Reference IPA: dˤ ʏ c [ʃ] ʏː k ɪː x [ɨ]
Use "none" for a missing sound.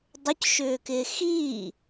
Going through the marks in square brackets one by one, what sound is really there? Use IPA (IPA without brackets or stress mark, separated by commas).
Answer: ʃ, i